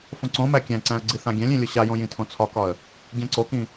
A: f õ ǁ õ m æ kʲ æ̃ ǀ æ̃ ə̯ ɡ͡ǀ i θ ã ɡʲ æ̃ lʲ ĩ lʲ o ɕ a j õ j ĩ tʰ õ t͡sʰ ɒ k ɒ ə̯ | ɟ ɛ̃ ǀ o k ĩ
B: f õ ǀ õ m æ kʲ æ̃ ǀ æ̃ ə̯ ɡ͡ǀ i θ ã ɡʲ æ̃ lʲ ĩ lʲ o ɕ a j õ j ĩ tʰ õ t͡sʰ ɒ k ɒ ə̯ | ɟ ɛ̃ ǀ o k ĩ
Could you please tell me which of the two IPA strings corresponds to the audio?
B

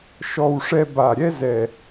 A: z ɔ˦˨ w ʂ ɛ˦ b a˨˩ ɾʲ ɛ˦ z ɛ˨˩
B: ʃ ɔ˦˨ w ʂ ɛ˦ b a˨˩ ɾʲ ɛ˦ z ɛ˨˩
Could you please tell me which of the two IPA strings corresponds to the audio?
B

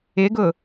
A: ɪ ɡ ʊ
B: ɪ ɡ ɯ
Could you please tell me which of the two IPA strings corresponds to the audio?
A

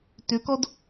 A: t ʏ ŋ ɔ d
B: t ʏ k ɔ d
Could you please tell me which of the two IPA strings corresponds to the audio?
B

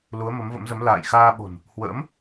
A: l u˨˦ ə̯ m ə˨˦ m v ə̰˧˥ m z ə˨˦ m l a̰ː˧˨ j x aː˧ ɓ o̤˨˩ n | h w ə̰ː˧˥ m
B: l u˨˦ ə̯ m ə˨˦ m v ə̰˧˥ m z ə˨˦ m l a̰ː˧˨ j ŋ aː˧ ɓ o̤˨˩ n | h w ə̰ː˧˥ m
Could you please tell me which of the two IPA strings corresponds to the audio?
A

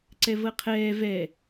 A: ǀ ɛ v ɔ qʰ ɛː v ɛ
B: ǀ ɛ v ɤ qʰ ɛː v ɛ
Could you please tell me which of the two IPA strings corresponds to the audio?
B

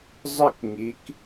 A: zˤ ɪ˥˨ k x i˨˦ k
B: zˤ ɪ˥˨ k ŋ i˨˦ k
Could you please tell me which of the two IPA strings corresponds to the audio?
B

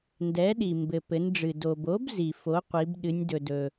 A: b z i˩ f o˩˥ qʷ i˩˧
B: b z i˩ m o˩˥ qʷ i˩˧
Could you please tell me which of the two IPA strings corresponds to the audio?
A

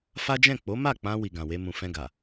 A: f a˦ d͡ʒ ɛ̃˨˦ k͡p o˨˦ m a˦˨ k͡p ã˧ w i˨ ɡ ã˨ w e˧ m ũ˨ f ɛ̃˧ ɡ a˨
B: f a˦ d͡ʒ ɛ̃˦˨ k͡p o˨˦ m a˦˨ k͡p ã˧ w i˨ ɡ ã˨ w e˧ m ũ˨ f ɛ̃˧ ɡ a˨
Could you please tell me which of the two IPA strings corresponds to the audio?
B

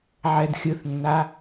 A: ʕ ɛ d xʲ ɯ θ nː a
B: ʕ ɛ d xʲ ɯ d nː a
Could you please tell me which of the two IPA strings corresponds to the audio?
A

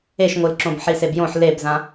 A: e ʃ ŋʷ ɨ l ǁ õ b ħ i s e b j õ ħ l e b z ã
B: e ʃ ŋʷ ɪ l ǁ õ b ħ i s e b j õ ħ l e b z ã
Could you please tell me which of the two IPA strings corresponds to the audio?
A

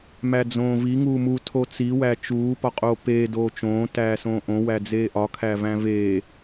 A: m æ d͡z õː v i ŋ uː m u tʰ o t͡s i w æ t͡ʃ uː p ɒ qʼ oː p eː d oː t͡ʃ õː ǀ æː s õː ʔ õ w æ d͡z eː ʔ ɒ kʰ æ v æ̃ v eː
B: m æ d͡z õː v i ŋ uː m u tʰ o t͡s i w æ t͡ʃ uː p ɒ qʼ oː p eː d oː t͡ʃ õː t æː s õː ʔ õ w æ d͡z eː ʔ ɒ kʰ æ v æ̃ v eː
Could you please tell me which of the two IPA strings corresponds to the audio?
B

